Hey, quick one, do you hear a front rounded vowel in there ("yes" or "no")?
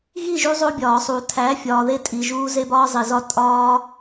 no